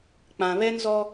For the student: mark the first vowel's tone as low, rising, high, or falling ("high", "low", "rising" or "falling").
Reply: low